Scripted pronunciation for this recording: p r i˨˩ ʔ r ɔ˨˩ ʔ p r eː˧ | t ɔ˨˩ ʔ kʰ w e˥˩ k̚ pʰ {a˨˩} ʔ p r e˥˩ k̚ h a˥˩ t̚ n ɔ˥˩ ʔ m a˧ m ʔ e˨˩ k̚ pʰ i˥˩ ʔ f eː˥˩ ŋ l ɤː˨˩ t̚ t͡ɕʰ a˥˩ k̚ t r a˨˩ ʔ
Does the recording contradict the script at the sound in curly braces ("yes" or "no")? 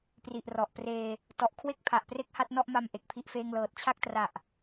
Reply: no